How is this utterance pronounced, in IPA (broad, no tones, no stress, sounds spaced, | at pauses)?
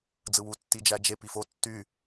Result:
d͡z ɯ w u tː i d͡ʒ æ d͡ʒ e p i f o tː y